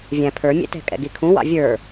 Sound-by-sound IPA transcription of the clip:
vʲ æ̃ pʰ ə˞ mʲ ɛ̰ t ɛ̤ kʼ ɛ̰ ɡ i kʰ ũ w ɑ̰ vʲ ə˞

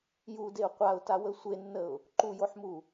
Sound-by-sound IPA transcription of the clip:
j u d e ʊ̯ qʷ a ʊ̯ t a w ə sʷ e nː ə ʊ̯ | ǃ u j o ħ m u

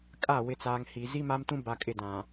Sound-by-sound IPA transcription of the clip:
kʼ a˦˨ w ɪ˨ t͡s aː˨ ŋ h i˨ z i˦ m a˦ m t ũ˦ b a˨ kʼ ɪ˨ d ã˨

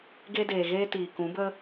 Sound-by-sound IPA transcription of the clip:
ɡ e˦ d eː˨ ɣ eː˦ t iː˨ k ũ˨˦ b ə˦

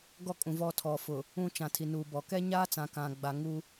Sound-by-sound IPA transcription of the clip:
ɡ ɔ˦ kʼ ũ˨ v ɔ˦˨ tʰ ɔ˨ f ʊ˨ | ũ˦ t͡ʃ ã˨ tʰ i˨ n uː˨ b ɔ˨ k ɛ˦ ɲ aː˦ t͡s ã˨ k ã˨ ɡ͡b a˨ ŋ u˦

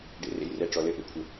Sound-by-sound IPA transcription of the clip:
ɖ ḛ˨ r ḛ˨ j r ɛ˨ ʈ͡ʂ ɔ˨ l ɘ˧ ʔ ḛ˧ kʷʰ ɘ˨

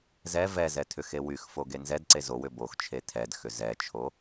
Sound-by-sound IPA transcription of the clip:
z ɛ v ɛ z ɛ tʰ ʏ x e w y x f o ɡ e n z ɛ d ǀ e z o w ʏ b o x t͡ʃʰ e tʰ ɛ d x ʏ z ɛ t͡ʃʰ o

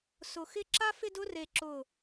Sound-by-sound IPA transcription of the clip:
s ʊ˧˩ x ɪ˥˧ ǁ a˥ f ɪ˥˧ d ʊ˥ r e˧˩ ǁ ʊ˧˩

